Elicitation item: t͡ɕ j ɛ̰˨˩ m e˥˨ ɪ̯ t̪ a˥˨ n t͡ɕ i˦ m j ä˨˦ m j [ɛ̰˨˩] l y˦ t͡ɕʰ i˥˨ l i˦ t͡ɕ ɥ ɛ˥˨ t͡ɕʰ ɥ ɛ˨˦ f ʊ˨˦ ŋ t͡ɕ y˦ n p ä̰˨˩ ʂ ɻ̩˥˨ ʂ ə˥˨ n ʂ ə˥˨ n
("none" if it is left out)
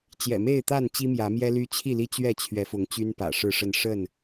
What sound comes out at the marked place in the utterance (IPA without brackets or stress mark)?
ɛ˦